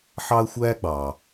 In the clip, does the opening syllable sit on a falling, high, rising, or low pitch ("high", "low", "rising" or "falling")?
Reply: high